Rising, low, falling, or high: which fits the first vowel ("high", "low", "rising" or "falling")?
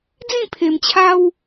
falling